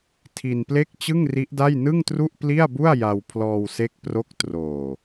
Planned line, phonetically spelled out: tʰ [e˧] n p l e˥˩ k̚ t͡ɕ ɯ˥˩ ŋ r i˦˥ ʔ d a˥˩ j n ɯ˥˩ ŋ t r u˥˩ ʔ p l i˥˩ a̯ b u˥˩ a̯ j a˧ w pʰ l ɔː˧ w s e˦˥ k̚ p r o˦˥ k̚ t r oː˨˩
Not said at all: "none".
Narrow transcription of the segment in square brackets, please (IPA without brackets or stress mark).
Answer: i˧